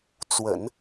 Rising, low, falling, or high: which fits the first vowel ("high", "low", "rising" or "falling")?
low